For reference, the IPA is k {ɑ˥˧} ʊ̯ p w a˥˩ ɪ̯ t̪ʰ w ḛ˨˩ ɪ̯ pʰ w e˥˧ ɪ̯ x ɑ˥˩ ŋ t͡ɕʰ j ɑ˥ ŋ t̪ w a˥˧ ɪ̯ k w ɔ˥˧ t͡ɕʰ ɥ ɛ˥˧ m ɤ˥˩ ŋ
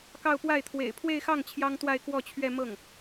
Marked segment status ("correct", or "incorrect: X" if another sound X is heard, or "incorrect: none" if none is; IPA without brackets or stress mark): correct